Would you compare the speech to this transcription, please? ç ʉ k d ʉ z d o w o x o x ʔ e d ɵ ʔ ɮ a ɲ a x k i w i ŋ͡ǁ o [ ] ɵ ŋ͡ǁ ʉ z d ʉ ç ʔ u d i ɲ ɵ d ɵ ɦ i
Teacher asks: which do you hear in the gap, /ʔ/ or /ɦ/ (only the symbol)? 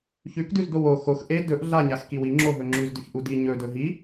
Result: ɦ